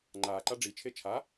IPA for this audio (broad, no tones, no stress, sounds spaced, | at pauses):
ŋ͡ǃ aː ǃ a ɖ͡ʐ i t͡ʃʰ e t͡ʃʰ a